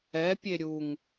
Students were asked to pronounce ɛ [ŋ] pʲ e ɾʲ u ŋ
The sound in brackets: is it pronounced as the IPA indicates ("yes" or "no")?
no